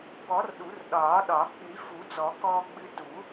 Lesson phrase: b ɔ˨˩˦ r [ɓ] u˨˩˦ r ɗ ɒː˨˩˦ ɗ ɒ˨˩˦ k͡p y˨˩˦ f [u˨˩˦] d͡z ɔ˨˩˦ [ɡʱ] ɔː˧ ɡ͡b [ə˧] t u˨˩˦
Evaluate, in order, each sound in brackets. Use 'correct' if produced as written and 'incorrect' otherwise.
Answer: incorrect, correct, incorrect, incorrect

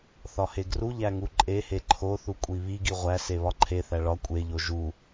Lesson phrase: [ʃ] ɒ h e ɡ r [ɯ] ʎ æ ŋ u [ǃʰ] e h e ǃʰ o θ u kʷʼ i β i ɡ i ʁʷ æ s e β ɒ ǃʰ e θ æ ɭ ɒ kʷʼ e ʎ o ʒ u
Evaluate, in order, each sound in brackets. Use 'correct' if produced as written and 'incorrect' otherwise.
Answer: incorrect, incorrect, incorrect

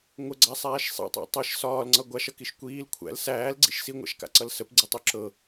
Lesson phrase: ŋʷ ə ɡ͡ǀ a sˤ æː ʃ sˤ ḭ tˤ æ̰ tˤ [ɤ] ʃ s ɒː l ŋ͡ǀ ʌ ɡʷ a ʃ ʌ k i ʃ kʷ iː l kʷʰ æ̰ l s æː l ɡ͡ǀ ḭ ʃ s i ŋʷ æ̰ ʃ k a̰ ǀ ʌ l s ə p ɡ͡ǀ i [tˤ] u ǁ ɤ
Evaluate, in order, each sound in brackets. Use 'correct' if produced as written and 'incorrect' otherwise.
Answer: correct, correct

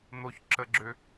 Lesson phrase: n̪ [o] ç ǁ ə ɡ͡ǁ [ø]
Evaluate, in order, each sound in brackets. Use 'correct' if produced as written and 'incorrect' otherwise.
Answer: correct, correct

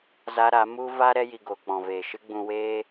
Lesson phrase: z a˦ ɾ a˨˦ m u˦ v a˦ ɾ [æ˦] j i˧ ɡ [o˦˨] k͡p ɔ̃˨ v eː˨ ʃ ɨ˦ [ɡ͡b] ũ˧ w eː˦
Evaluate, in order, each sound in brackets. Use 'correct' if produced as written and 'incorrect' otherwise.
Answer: incorrect, incorrect, correct

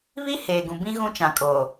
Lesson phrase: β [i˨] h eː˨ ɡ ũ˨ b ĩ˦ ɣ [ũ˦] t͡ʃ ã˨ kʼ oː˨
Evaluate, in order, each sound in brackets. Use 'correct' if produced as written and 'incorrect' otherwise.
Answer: incorrect, correct

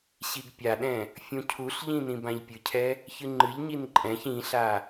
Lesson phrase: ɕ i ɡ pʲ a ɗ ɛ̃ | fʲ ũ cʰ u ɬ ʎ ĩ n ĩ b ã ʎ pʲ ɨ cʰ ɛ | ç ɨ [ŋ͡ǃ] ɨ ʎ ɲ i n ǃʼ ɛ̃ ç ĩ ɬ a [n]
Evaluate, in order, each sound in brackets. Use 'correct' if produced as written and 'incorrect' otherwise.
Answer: correct, incorrect

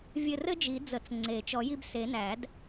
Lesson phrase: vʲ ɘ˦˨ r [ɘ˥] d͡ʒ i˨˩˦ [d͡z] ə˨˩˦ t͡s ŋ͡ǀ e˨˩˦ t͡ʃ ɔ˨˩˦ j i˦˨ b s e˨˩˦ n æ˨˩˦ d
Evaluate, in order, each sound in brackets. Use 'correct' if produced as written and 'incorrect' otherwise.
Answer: correct, correct

